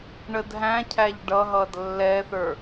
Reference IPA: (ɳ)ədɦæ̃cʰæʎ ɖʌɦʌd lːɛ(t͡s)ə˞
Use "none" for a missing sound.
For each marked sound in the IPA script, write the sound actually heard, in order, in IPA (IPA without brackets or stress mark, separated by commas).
ɳ, θ